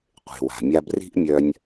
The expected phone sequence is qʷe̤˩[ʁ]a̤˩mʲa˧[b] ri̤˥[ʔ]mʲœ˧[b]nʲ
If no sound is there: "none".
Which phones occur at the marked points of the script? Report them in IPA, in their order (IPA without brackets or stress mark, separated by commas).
w, b, ʔ, none